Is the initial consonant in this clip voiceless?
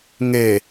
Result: no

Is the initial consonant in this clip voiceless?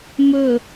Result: no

